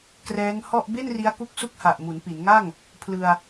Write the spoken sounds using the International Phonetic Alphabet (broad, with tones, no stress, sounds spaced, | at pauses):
k r ɛː˦˥ ŋ h ɔ˥˩ ʔ b e˥˩ n r i˦˥ a̯ k u˦˥ k̚ s u˥˩ k̚ h a˨˩ ʔ m u˩˦ n p i˩˦ n ŋ a˥˩ ŋ | pʰ l ɯ˧ a̯